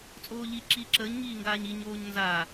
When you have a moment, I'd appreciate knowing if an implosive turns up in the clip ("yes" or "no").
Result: no